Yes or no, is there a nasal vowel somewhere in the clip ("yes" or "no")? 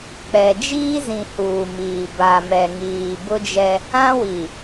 yes